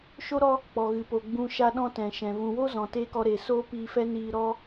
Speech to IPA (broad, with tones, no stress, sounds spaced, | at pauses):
ʃ o˦ ɾ ɔ˦ | k͡p ɔ˨ ɣ ɨ˨ p o˨ ɡ͡b ũ˧ ʃ a˧ ɗ ɔ̃˧ t ɛ̃˨ ʃ ɛ̃˨ v ũ˨ w o˦ z ɔ̃˨ t eː˦ k ɔ˧ ɾ eː˨ s oː˦ p iː˧ f ɛ˦ n iː˧ ɾ ɔ˦